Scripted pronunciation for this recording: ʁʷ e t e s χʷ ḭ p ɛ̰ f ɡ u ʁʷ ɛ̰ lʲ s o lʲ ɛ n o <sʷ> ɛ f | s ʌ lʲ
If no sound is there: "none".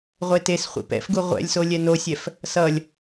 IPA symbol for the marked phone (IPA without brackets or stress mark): sʲ